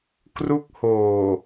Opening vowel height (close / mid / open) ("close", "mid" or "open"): close